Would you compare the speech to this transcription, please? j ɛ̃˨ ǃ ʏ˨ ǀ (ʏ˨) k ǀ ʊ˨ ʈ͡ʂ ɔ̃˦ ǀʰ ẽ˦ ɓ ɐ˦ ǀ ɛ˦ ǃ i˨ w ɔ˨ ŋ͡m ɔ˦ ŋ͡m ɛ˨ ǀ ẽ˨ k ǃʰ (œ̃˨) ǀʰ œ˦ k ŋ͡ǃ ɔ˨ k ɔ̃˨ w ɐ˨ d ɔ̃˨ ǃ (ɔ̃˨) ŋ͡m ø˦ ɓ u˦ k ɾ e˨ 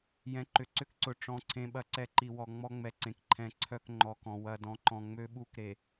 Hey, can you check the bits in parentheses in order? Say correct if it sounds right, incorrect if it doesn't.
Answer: incorrect: ʏ˦, incorrect: ɛ̃˨, correct

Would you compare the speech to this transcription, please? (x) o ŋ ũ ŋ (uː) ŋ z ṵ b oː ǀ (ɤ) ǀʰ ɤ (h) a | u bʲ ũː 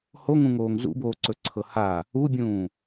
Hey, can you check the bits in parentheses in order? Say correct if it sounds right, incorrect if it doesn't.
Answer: incorrect: h, incorrect: oː, incorrect: ɵ, correct

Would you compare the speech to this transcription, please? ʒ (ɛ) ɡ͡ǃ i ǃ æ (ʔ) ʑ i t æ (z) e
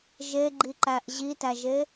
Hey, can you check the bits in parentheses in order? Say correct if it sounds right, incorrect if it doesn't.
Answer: incorrect: e, correct, incorrect: ʒ

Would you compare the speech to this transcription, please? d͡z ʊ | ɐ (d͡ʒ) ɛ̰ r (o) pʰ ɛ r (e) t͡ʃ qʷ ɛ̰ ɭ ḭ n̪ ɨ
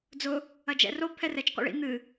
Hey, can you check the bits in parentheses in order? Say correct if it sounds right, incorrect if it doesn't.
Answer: correct, correct, incorrect: ɛ

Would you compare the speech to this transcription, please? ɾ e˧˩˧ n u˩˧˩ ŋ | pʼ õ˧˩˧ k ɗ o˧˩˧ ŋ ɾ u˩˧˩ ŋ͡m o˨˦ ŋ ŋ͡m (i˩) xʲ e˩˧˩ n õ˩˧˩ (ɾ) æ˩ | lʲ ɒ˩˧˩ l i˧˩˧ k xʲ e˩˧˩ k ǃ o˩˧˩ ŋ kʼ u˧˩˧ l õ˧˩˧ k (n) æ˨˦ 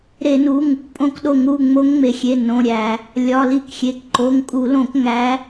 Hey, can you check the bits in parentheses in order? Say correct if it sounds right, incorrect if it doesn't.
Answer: incorrect: e˩, incorrect: ɾʲ, incorrect: ŋ

